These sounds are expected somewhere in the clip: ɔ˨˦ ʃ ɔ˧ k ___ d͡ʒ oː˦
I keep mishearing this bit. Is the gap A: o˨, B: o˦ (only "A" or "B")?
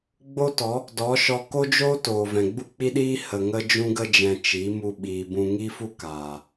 B